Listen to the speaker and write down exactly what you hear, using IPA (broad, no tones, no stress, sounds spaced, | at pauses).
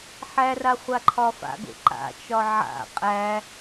ħ æ r a χʷ a ǃʰ ɒ f a̰ ɡ o̰ ǃ a̰ t͡ʃ ɒ ʕ a̰ qʼ æ